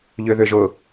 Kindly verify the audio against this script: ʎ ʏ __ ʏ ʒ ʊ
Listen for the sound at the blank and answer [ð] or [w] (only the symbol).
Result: ð